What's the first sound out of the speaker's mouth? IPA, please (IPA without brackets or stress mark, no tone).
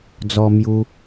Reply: d͡z